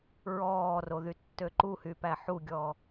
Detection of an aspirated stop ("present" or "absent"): absent